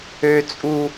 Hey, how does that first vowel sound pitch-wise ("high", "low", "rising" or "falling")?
low